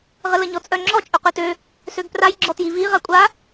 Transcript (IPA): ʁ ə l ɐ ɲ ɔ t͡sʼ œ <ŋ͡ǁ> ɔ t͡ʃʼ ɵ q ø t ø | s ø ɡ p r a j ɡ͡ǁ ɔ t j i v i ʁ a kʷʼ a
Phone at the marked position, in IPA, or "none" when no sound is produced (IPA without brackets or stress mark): ŋ͡ǁ